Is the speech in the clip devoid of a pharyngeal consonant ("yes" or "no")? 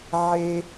no